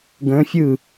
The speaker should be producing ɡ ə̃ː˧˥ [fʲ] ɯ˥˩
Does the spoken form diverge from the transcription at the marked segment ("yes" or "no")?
no